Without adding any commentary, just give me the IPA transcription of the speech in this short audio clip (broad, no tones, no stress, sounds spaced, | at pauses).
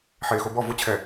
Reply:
ħ eː x o b ɔ v ʊ t͡ɕʰ ɛ